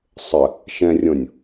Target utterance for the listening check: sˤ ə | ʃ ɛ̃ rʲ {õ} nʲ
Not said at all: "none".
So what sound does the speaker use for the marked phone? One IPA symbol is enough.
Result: õ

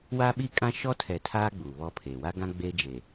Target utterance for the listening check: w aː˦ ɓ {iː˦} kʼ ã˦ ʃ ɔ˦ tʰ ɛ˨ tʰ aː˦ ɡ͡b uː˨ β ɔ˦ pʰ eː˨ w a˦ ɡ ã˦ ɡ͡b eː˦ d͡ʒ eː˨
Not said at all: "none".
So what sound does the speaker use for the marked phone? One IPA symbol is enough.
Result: iː˦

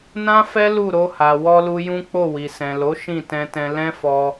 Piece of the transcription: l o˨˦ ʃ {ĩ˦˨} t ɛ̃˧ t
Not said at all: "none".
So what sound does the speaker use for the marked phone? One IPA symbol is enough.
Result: ĩ˦˨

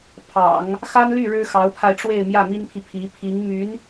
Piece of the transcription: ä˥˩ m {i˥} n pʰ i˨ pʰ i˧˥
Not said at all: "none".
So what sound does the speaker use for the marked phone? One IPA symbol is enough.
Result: i˥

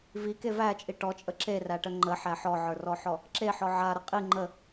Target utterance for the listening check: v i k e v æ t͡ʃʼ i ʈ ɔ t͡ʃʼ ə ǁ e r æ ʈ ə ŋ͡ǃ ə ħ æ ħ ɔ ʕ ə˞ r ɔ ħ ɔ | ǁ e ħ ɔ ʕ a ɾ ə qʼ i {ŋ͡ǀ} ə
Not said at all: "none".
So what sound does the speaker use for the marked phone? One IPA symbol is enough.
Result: ŋ͡ǃ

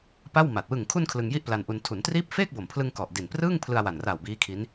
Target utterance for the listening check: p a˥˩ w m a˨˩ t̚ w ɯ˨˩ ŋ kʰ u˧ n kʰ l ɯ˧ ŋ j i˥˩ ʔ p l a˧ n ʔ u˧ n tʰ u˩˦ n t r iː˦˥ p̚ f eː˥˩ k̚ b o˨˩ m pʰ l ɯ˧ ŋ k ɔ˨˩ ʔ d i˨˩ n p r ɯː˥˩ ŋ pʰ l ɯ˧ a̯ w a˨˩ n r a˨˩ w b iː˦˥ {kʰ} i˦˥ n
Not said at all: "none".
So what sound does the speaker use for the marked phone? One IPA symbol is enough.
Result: kʰ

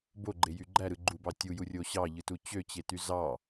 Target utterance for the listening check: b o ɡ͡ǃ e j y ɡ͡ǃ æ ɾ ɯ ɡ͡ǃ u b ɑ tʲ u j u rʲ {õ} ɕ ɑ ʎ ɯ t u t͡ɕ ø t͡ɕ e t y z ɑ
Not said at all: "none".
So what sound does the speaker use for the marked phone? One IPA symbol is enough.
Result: o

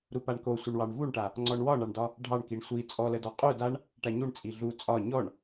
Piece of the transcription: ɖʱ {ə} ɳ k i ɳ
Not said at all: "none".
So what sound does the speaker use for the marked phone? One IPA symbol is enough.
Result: ɑ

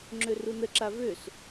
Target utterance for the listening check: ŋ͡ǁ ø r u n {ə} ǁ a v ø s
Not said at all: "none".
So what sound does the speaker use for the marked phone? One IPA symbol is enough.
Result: ə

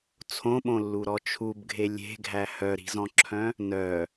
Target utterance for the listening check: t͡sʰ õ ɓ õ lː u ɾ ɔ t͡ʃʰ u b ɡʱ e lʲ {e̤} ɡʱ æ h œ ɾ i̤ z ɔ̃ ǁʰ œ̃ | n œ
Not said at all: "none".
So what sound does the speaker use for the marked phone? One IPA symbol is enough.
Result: e̤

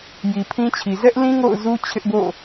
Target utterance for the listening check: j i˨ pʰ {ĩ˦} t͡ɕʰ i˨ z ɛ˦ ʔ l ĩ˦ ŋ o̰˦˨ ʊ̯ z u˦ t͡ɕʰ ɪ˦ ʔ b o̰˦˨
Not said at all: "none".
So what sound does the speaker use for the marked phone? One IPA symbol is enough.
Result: ĩ˦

